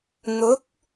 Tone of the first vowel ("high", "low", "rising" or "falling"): rising